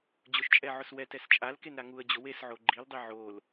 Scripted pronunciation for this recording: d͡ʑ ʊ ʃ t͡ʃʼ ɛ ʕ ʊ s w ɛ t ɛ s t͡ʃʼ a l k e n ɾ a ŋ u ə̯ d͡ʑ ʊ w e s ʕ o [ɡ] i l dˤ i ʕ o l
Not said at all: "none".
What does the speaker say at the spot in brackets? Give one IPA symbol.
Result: ɡ͡ǃ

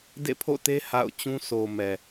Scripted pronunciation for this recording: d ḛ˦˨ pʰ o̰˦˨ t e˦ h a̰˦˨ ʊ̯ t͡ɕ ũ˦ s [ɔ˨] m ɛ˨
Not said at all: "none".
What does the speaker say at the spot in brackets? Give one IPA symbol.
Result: o˨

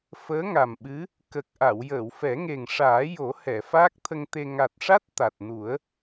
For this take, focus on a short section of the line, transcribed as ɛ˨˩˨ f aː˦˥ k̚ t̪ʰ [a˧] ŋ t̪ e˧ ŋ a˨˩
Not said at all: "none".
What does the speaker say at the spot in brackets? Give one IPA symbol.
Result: ə˧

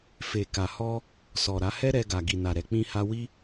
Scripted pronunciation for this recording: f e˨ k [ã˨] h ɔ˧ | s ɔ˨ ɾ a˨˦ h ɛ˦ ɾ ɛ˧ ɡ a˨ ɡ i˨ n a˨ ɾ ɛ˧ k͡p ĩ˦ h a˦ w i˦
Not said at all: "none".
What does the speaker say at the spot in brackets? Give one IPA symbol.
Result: a˨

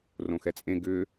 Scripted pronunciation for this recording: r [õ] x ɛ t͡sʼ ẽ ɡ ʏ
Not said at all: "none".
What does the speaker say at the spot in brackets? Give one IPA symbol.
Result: õ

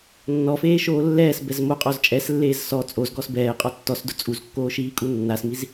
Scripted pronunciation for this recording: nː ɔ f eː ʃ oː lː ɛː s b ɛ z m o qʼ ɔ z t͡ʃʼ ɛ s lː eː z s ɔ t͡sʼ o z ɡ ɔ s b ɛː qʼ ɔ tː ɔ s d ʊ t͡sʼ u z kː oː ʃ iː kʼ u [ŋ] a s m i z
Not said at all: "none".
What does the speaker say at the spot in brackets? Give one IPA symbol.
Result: nː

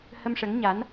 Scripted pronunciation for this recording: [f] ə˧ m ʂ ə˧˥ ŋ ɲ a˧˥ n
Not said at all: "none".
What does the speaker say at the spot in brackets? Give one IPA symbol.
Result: h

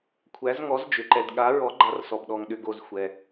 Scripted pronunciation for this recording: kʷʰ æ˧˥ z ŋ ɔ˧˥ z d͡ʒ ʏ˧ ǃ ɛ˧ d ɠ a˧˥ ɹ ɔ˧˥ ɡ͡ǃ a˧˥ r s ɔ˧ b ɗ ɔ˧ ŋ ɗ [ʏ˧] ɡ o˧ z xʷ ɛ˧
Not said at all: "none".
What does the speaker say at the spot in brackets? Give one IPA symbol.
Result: ʏ˧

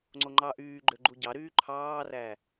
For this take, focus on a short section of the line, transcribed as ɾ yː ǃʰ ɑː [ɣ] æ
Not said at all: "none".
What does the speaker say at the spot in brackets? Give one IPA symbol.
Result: r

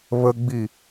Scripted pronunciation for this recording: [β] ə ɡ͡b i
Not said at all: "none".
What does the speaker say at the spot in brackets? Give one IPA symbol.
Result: β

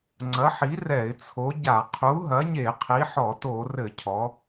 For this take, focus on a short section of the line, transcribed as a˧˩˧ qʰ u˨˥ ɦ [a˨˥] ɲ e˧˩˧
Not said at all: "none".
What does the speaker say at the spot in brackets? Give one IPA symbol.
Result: ɐ˨˥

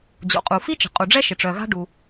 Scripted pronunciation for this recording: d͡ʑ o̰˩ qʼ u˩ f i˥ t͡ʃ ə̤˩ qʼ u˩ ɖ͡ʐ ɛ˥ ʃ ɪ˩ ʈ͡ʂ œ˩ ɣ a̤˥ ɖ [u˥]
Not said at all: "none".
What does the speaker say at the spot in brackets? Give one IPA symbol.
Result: u˩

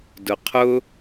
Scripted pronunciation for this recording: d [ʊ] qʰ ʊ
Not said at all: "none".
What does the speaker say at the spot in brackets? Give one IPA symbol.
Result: ʊ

